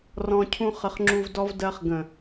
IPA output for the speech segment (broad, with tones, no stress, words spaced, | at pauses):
rɔ̃˦ cʰũ˦χə˧χŋ͡ǁu˧vdɔ˦v dɜ˧χ ɡə̃˨